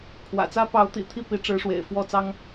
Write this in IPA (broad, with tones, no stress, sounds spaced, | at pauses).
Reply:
kʰ w ä̰˨˩ t͡s ä˥ p ɑ˧˥ ʊ̯ t̪ ḭ˨˩ t̪ʰ i˥˩ p i˧˥ ʈ͡ʂ ɻ̩˧˥ ʂ w ḛ˨˩ ɪ̯ f w ɔ˥˩ t͡s ɑ˥ ŋ